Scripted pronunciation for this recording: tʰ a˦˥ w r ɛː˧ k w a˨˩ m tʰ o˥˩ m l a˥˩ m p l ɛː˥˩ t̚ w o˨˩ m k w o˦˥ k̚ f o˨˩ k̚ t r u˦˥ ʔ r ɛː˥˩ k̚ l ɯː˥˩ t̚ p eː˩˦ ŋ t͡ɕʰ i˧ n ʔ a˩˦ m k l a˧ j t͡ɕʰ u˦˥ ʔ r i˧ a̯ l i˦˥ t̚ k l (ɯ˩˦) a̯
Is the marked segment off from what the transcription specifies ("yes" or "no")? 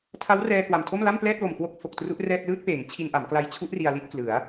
no